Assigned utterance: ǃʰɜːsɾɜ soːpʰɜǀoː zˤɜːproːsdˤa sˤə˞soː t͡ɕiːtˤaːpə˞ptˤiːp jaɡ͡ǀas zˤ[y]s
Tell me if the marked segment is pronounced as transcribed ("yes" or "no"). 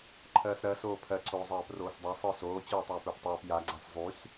yes